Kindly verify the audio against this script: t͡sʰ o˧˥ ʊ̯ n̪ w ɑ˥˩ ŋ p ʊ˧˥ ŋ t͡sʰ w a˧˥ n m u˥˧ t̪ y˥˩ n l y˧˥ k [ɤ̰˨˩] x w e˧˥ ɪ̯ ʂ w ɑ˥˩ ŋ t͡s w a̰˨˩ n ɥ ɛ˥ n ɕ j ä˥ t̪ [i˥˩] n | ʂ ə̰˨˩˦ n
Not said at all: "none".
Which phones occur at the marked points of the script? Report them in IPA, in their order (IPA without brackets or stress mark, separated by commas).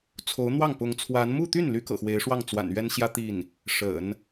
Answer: ɤ̰˨˩, i˥˩